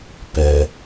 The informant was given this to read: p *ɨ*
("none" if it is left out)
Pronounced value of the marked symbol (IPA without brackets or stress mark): ɛ